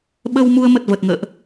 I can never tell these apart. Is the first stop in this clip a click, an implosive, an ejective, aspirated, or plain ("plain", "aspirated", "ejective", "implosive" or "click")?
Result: implosive